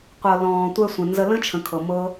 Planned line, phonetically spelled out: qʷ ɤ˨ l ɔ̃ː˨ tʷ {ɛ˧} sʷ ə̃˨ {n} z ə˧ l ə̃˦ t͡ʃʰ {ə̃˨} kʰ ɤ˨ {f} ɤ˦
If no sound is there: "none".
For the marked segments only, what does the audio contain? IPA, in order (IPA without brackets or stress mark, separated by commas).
ɛ˧, n, ə̃˨, m